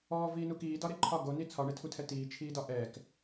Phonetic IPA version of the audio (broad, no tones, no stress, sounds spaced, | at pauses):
ɔː v iː n u k iː d ɒ ɾ e ǃʰ ɒ ɡ o n i t͡sʰ ɒ ɳ e tʰ u tʰ ɛ t iː t͡ʃʰ iː d ɒ ʔ ɛ k